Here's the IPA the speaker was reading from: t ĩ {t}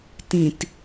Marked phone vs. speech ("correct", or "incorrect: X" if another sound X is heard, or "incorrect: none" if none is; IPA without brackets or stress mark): correct